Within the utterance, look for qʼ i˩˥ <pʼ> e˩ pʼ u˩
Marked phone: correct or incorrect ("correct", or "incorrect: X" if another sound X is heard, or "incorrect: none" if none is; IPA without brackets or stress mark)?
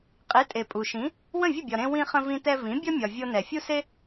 incorrect: tʼ